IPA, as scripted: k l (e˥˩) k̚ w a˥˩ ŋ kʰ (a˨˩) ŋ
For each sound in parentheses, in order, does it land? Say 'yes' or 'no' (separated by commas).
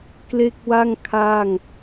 yes, no